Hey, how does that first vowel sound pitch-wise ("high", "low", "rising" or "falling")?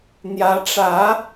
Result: rising